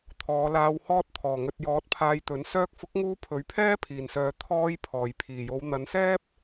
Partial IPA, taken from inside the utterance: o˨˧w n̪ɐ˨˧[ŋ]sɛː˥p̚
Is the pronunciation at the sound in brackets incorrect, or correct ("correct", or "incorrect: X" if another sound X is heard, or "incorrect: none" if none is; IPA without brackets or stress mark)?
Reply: incorrect: n